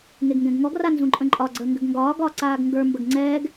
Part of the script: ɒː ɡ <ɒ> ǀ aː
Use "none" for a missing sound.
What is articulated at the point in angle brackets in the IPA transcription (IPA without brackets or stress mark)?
ɒː